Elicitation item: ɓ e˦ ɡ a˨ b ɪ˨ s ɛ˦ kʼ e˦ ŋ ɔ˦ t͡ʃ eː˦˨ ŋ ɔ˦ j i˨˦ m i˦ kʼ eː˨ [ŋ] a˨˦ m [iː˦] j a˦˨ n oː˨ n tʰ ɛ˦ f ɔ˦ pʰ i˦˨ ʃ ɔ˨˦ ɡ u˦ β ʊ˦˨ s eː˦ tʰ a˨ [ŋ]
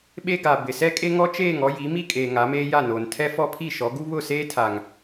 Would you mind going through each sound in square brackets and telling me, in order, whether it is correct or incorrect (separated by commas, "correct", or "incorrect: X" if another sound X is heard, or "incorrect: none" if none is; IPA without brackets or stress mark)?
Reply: correct, incorrect: eː˦, correct